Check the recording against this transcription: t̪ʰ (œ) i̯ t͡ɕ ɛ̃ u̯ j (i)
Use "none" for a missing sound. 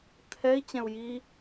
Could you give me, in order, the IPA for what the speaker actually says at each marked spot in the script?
ɛ, i

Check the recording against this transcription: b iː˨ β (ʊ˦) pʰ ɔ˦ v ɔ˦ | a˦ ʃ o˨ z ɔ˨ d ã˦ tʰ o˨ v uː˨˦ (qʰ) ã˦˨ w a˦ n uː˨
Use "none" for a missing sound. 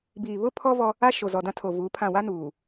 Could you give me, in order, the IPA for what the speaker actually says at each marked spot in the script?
ʊ˦, pʰ

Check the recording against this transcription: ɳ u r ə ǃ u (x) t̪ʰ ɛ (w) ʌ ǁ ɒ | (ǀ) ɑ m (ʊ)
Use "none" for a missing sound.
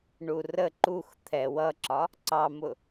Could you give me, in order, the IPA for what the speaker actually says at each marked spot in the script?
x, w, ǀ, ʊ

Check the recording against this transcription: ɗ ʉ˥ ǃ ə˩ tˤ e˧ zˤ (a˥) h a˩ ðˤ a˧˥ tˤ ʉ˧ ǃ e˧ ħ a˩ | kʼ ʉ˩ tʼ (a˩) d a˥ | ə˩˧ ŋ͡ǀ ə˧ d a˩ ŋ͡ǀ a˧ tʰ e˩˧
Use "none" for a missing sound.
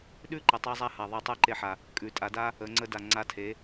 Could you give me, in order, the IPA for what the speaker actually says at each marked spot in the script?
a˧, a˩˧

